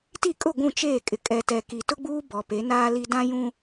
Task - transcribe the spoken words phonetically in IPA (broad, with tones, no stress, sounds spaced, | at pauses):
t i˦˨ kʼ ʊ˦˨ ɡʷ ũ˦˨ t͡ʃ eː˦˨ kʼ ɪ˨ kʼ ɛ˨ t ɛ˨ k i˨ t ʊ˦ ɡ͡b uː˦ b ɔ˨ p e˨˦ n aː˦ l i˦ d ã˦ j ũ˦